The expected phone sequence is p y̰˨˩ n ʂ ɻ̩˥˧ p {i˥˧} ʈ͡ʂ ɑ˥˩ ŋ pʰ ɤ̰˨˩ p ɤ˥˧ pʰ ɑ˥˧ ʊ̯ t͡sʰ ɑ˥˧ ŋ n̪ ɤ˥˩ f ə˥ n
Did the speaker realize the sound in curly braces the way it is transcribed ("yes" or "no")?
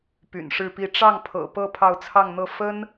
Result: yes